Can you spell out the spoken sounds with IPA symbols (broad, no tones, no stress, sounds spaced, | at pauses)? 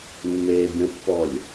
mː eː bʲ ə̃ pː ɔ lʲ